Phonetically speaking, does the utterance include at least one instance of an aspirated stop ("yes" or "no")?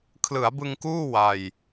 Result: yes